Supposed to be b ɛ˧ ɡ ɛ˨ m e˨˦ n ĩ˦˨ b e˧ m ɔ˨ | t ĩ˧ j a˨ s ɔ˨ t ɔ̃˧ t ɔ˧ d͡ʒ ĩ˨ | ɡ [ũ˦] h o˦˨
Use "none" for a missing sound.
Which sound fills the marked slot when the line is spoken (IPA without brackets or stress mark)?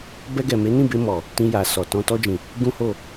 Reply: ũ˦